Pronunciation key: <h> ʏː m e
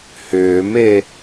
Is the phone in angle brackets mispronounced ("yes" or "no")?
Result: no